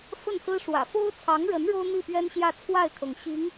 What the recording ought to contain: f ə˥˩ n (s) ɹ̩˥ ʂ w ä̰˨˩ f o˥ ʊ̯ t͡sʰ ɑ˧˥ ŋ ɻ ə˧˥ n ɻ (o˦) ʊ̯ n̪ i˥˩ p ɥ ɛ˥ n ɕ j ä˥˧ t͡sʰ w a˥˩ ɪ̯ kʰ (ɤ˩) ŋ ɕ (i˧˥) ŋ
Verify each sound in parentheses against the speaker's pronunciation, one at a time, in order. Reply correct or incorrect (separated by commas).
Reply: correct, incorrect, correct, correct